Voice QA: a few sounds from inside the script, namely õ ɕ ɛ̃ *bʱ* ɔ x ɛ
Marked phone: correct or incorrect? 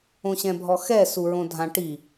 correct